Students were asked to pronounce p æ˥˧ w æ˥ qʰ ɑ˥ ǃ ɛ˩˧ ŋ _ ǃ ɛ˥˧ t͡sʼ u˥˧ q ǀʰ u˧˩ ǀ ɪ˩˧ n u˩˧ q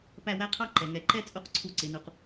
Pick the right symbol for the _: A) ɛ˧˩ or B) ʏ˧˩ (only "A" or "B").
A